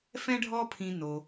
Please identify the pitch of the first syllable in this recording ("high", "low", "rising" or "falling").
high